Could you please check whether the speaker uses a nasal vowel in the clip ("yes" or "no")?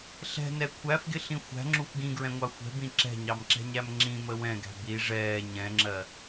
yes